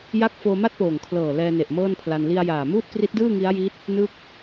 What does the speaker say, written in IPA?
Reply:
j a˥˩ k̚ f oː˧ m a˥˩ t̚ p oː˨˩ ŋ kʰ l ɤː˨˩ l ɛː˧ n e˨˩ ʔ m ɤː˥˩ n pʰ l a˧ n l i˧ a̯ j aː˨˩ m uː˥˩ t̚ k r i˦˥ t̚ d ɯː˥˩ ŋ i˦˥ a̯ j i˦˥ t̚ | n ɯ˥˩ k̚

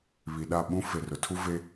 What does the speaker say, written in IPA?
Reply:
β i˨ ɗ a˦˨ ɓ ũ˦ f e˨ r ʊ˨ tʰ u˦ v e˦

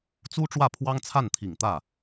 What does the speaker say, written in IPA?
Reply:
t͡s u˥ ʈ͡ʂ w ä˥˩ pʰ w ɑ˥ ŋ t͡sʰ a˥˩ n t̪ʰ i˨˩ ŋ t̪ ä˥˩

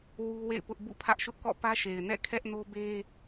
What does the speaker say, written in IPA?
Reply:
w u˦ w ḛ˦˨ ɪ̯ p ʊ˦ ʔ b ṵ˦˨ pʰ ä˦ ʔ ʃ ʊ˦ ʔ k ɔ̰˦˨ p ä˦ ʃ e˨ ɪ̯ n ɛ̰˦˨ kʰ ɛ˦ ʔ n o˦ b e˦

